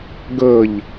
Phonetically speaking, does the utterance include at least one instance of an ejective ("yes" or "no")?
no